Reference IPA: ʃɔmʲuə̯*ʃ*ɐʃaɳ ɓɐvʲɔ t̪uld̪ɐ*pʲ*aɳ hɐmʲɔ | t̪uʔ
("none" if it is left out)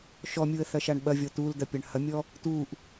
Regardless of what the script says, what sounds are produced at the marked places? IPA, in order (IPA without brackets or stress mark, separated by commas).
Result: θ, pʲ